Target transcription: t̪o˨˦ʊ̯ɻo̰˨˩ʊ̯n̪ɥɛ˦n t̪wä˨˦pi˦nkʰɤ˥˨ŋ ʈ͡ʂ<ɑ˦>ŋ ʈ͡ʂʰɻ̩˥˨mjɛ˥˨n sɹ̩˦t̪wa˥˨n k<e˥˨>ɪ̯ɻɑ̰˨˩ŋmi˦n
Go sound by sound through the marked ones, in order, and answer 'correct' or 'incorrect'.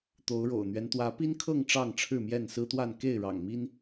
incorrect: ɑ˥˨, correct

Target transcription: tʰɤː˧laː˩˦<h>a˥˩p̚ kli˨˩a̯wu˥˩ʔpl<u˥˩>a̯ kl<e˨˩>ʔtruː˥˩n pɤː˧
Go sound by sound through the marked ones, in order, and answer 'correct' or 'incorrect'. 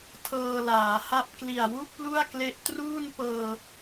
correct, correct, incorrect: e˦˥

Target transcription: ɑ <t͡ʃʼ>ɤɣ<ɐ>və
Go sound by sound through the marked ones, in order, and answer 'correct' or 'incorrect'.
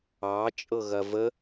correct, correct

